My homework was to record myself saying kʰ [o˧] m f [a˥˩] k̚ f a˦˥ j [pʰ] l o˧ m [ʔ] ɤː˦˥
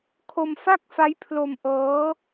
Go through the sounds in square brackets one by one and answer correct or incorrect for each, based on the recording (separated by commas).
correct, correct, correct, correct